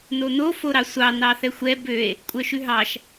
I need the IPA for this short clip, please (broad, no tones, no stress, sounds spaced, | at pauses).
n o n o f o ɾ ɑ sʷ ɑ n ɑ θ ɛ xʷ ɛ b ø e̯ | kʷʼ œ ʃ ʉ ɦ ɑ ʃ